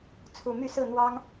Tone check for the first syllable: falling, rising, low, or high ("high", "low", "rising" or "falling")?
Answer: low